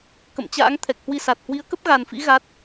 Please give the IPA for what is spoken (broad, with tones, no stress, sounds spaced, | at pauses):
k ə̰˧˨ m t͡ɕ a̰ː˧˥ ŋ t̪ʰ ɛ˨˩ k̚ h w i˧ s a˨˩ t̚ h w i˨˦ ə̯ k ə˦˥ p̚ ɣ a˨˩ n f ḭ˧˥ ɣ a˦˥ t̚